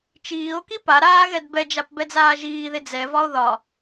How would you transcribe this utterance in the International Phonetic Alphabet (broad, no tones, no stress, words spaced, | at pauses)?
t͡ʃiːo̯ki pa ɾaːɣɛdbɛd͡ʒap bɛd͡zaːʒiːðe d͡zɛvɒo̯ ðɒ